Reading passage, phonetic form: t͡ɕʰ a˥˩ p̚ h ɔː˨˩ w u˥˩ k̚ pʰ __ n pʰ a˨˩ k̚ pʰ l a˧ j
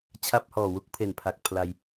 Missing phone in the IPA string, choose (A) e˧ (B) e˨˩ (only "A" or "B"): B